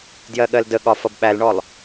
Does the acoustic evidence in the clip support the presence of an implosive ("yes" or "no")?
yes